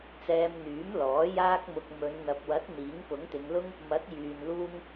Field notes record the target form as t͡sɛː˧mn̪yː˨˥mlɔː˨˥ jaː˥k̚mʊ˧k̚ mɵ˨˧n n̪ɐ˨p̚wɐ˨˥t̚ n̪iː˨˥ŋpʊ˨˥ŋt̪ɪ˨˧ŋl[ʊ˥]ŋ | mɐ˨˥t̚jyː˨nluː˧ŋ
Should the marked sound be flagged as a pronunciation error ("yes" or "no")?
no